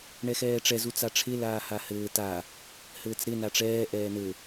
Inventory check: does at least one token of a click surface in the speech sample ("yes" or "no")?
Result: no